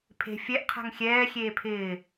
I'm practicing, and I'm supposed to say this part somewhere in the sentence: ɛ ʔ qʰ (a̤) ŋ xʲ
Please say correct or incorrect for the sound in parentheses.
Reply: correct